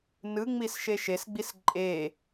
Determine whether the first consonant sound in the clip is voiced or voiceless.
voiced